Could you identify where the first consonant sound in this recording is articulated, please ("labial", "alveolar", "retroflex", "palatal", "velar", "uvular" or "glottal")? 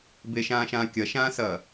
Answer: labial